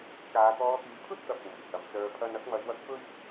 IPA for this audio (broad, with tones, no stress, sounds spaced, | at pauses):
k aː˨˧ t̪ ɔː˧ t̪ yː˨˧ pʰ ɵ˥ t̚ t̪ ɐ˨ p̚ w uː˨˩ j h ɐ˨˧ m t͡s œː˧ pʰ ɐ˥ n ɐ˧ k̚ m ɐ˨˧ j w ɐ˧ k̚ p ɵ˥ ɥ